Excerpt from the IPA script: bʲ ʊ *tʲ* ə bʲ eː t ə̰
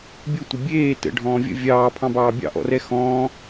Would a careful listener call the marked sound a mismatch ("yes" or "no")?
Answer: yes